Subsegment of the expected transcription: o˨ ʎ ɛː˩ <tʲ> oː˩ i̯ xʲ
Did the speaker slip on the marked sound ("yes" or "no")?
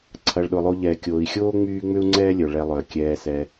yes